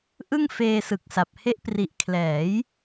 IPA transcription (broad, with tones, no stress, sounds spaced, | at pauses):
ʔ ɯ˥˩ ŋ f eː˧ s ɯ˨˩ k̚ s a˨˩ p̚ h e˦˥ ʔ p r i˨˩ ʔ kʰ l ɛː˩˦ j